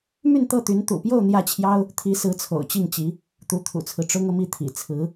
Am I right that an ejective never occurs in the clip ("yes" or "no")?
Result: yes